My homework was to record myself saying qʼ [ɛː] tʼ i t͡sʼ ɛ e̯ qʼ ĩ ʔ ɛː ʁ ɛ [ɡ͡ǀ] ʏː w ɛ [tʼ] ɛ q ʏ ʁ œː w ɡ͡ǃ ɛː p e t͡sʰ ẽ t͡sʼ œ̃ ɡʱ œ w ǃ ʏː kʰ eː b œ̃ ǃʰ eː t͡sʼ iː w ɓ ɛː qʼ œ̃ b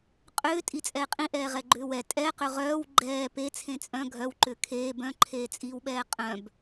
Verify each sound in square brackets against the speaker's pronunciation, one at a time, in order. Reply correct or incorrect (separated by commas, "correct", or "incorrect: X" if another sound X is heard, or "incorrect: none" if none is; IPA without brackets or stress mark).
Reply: incorrect: ʏː, incorrect: ɡ͡ǃ, correct